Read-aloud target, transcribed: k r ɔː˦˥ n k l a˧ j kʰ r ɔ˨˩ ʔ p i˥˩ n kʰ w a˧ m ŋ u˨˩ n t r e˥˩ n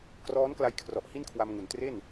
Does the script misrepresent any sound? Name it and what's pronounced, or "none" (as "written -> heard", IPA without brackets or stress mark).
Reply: p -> h